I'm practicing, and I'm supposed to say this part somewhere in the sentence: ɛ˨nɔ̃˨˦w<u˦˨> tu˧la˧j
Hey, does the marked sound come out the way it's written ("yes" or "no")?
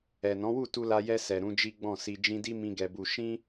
yes